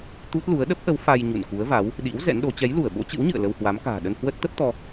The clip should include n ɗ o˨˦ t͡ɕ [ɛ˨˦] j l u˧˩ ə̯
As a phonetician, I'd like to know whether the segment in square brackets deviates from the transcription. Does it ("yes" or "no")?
no